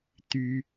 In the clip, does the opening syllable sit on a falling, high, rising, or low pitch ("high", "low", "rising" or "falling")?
high